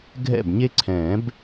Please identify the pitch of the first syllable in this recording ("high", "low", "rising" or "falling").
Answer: falling